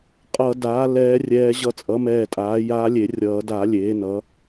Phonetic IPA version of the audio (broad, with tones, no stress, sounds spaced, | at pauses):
qʼ ʌ˨˩˦ d aː˩˥ l ɛː˧˥ rʲ ɛː˧˥ ʑ ʌ˧˥ t͡sʼ ʌ˩˥ m ɛː˧˩ tʼ aː˩˥ j aː˧˥ lʲ e˨˩˦ rʲ ʌː˨˩˦ d a˨˩˦ lʲ eː˩˥ n ʌ˩˥